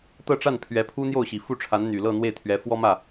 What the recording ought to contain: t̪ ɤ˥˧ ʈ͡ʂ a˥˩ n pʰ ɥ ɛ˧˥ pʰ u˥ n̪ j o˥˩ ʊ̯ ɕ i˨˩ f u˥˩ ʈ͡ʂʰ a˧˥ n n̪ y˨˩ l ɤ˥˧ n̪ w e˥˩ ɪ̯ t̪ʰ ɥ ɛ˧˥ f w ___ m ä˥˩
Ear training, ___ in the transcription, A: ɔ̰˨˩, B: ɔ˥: B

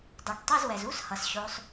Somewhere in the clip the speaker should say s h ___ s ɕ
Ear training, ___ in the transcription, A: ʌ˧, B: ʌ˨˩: B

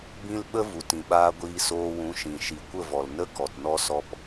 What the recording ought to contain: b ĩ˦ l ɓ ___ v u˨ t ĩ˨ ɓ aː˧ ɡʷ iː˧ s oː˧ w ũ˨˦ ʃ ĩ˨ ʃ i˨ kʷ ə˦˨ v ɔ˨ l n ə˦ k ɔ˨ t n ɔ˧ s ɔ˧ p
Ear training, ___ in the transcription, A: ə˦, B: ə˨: A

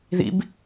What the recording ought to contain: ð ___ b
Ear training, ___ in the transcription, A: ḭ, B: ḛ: A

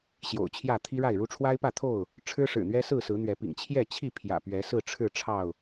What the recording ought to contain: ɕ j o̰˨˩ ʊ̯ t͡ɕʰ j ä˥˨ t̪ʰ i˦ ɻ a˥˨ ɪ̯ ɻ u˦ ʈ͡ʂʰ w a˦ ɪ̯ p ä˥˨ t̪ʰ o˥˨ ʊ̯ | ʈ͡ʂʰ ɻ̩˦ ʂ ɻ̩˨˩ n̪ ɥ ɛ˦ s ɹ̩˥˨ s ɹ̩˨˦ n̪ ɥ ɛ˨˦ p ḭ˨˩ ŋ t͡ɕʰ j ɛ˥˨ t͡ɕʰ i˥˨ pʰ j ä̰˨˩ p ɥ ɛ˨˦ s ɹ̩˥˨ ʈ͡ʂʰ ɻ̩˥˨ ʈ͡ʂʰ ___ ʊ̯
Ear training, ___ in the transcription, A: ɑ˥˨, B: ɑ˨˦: A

